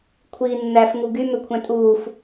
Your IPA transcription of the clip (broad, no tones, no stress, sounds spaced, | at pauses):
kʷʰ iː nː æ f ŋ u ɡ y m ø kʷʰ æ̃ tʼ uː f